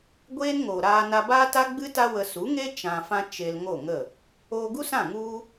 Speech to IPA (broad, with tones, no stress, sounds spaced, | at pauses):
ɡʷ eː˦ n ŋ oː˨ ɾ aː˧ n a˧ b aː˦ t a˦ ɡ͡b ɨ˦ t a˦ w ə˧ s u˨˦ ŋ e˦ t͡ʃ ã˧ f ã˦ t͡ʃ e˧ l ŋ o˦˨ ŋ ə˦˨ | oː˧ ɡ u˦ s ã˦˨ ŋ u˦